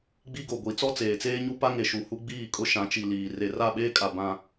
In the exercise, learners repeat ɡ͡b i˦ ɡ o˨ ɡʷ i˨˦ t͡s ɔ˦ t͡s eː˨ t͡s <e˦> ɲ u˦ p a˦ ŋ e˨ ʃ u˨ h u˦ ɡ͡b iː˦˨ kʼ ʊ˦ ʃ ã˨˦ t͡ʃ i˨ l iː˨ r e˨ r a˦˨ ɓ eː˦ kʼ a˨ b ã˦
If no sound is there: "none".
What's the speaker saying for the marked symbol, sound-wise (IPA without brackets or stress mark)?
eː˦